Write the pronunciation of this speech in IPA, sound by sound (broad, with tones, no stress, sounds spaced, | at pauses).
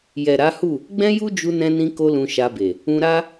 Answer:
j ɛ˨ ɾ a˨˦ h u˦˨ | ɡ͡b ɛ̃˦ j u˦ d͡ʒ u˧ n ɛ̃˧ n ĩ˧ k o˧ l ũ˧ ʃ a˧ b e˨ | ũ˧ ɾ a˦